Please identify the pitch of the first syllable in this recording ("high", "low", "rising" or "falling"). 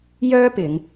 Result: high